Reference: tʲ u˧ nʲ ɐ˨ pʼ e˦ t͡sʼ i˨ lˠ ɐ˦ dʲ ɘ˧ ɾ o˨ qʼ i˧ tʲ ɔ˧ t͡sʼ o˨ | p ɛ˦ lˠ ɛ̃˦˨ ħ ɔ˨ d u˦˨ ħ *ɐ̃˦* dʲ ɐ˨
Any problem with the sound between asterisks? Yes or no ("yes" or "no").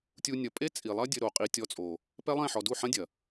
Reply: no